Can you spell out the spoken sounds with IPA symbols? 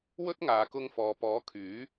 w ɵ˥ t̚ ŋ aː˨˧ k ʊ˧ ŋ f ɔː˨ p ɔː˨˥ kʰ yː˨˥

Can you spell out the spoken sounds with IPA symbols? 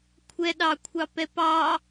kʷʰ ɛ ɗ ɑ kʷʰ ɑ p ɛ p ɑ

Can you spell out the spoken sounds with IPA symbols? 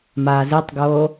m aː z i tˤ ɡ oː

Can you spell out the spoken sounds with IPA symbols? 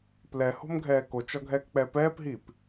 p l ɛ h o̤ m ɡʱ ɛː k o t͡ʃ ɒ ɡʱ ɛː k k͡p ɛ p ɛː p ɦ iː p

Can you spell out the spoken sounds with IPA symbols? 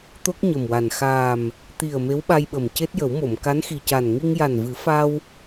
t̪ o˦˥ k̚ ɲ ə˨˩ m w a˨˩ n x aː˨˩ m | t̪ i˨˩ ə̯ m e˧˥ w ɓ a˧ j ɓ ə˨˩ m c e˦˥ t̚ j ə˨˩˦ w m o˨˩˨ m k a˧˥ n x i˨˩ c a˨˩ n ŋ i˧ ŋ j a˨˩ n v ɨ˨˩˦ f a˧ w

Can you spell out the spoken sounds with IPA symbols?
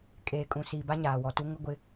kʼ eː˨ kʼ ũ˨ s iː˨ b a˦ ɲ aː˨ w ɔ˨ t u˦ ŋ ʊ˦ ɡʷ ɪ˦

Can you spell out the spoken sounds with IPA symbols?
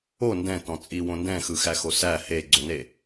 o n d ɛ̃ t ɔ̃ t͡sʼ i w õ n d ɛ̃ x ɯ x æ x o s æ h e ɡ͡ǀ o n e

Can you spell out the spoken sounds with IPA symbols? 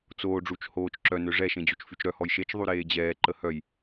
t͡s oː ɖ͡ʐ u t͡ʃ h oː t͡ʃ ǁ œ n ø ʐ ɛ ʃ ẽ d͡ʑ o t͡ʃ f y t͡ʃ ɾ œ h ɔ j ʃ e t͡ʃ ðˤ y ɾ eː d͡ʑ ɛː ǃ ə h œ j

